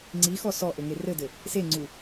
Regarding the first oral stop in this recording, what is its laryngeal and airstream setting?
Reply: click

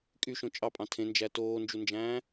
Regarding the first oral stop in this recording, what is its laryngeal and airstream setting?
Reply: ejective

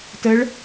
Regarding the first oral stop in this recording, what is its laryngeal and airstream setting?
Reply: plain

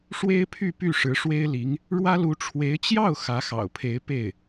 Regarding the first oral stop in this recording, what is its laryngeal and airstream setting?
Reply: aspirated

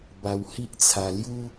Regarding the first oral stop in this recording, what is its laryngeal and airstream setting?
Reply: plain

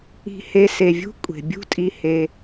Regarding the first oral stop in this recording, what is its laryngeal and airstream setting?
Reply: ejective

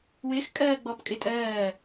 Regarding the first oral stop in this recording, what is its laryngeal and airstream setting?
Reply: ejective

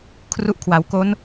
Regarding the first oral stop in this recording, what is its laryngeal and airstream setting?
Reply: aspirated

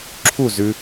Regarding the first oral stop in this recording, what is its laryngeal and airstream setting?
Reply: click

